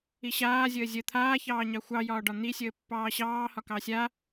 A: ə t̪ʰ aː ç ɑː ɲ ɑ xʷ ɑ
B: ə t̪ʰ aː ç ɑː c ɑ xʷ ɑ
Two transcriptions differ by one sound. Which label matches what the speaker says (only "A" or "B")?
A